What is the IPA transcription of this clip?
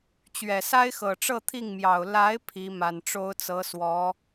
t͡ɕ ɥ ɛ˨˩ s a˥ ɪ̯ x ɤ˨˩ ʈ͡ʂ ɤ˥˧ t̪ʰ i˥˩ ŋ m j ɑ˨˩ ʊ̯ l a˧˥ ɪ̯ pʰ i˧˥ m a˨˩ n ʈ͡ʂ o˥ ʊ̯ t͡s ɤ˧˥ s w ɔ˧˥

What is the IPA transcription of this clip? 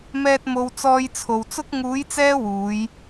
m ɛː˧ t̚ m o˧ w t͡s ɔː˧ j t͡sʰ o˨ w t͡s ʊ˥ k̚ ŋ uː˨˧ j t͡s ɛː˧ w uː˨˧ j

